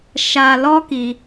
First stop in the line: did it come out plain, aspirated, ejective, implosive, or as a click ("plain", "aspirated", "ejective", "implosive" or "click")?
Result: plain